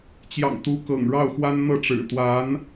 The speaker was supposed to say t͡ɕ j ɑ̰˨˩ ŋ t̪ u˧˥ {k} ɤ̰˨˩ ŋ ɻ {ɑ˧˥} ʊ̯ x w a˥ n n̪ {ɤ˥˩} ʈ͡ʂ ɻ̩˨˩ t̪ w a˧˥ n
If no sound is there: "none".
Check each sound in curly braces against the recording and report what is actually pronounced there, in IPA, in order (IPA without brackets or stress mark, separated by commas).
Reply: k, ɑ˥˩, ɤ˥˩